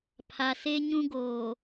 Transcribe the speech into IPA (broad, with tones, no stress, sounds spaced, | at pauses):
pʰ a˨ s e˦ ɲ ũ˦ ɡ oː˨